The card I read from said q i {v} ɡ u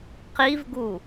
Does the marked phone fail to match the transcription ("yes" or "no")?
no